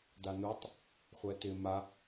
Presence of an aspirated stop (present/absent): absent